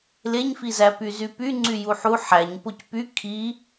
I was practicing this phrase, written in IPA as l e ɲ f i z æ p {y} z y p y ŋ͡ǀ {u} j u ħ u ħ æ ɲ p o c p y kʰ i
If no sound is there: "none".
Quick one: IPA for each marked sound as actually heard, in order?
y, y

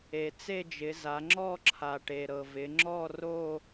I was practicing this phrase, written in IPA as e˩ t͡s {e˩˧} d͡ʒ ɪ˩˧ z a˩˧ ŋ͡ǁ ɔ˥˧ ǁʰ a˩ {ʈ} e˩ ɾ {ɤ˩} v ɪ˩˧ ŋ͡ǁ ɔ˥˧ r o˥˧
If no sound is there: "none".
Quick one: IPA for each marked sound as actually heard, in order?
e˥˧, ʈ, ɤ˩

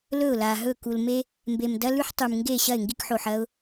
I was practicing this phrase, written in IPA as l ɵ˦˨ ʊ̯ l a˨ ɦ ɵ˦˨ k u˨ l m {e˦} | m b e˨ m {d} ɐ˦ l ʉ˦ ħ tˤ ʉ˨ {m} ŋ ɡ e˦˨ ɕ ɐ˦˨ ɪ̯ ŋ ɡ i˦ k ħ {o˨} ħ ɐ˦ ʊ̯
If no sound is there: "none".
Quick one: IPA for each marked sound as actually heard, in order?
e˦, d, m, o˨

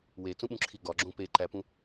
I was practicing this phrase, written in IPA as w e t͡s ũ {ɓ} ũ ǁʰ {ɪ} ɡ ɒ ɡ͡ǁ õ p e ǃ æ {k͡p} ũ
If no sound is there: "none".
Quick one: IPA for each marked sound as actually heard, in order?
ɓ, i, p

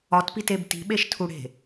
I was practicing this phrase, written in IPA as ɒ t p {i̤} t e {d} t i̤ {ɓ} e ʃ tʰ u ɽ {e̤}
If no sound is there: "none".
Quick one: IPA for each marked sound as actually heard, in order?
i, b, ɓ, e̤

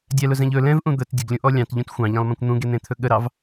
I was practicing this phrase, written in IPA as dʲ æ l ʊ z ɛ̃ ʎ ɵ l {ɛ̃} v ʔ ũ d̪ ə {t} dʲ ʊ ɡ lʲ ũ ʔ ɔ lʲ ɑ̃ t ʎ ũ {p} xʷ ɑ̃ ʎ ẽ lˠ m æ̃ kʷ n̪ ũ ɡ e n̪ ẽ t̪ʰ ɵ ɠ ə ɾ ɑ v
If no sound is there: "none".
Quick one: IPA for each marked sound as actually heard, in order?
ɛ̃, t, t

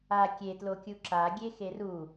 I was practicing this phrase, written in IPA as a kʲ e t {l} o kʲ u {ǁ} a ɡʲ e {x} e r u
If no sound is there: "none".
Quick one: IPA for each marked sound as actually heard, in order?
l, ǁ, x

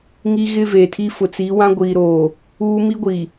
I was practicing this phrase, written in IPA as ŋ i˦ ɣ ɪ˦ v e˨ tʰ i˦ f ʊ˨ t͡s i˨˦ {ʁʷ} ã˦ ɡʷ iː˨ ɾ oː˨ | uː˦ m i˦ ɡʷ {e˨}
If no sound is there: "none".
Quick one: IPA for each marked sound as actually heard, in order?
w, i˨

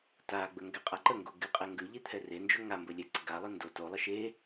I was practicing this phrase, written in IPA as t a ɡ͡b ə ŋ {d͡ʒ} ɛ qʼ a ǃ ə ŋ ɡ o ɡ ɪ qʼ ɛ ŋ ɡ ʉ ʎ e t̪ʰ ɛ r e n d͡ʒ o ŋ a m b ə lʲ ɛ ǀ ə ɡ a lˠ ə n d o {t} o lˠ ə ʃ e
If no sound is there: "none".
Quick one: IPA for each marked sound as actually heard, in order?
ɡ, t

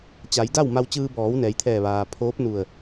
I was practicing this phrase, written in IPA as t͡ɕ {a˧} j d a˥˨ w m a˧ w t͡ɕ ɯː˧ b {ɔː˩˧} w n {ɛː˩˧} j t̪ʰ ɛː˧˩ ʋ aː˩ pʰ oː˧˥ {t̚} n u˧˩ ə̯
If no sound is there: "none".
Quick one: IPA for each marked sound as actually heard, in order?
a˩˧, ɔː˩˧, ɛː˩˧, p̚

